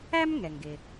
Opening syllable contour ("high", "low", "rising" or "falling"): high